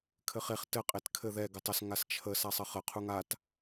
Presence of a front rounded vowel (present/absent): absent